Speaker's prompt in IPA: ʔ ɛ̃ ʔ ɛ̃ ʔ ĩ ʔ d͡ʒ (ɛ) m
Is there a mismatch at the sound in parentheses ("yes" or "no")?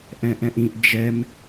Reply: no